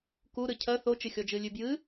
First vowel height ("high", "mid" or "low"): high